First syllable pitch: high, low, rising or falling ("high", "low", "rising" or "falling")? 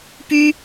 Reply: high